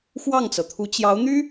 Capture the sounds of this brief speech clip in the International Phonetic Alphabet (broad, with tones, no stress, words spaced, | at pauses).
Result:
xwɑ˥˩ŋt͡sɤ˩t̪ʰu˧˥ t͡ɕjɑ˧˥ʊ̯n̪y˥